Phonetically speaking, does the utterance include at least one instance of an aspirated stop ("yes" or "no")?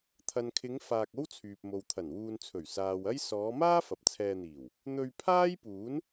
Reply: yes